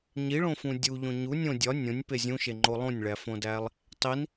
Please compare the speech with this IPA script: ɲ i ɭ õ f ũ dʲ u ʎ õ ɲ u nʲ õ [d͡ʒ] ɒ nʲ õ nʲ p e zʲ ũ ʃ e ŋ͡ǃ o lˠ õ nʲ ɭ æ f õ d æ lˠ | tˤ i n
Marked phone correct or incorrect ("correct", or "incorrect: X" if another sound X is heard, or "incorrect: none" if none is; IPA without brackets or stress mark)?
incorrect: dʲ